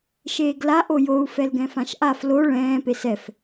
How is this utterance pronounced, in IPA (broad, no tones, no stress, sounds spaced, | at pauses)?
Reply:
ʃ eː ɡ l a ʔ o j o u̯ f ɛ l ɡ ɛ̃ f ã ʃ ʔ a f l o ɭ ɛ̃ː p e s ɛ f